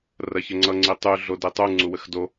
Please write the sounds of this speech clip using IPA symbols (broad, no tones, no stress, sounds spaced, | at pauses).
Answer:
r ɐ ç ə ŋ͡ǀ ʌ ŋ͡ǀ i tˤ y ɮ o d i tˤ u ŋ͡ǀ u w ə x d o